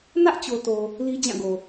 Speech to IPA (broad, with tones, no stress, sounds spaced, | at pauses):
n ä˦ ʔ t͡ɕ o˨ t o˨ | l i˦ d͡ʑ ã˦˨ ɡ o˨